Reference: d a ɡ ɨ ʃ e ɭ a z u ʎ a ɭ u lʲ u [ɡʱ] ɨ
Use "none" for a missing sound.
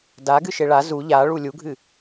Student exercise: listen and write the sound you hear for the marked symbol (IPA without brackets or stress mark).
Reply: ɡʱ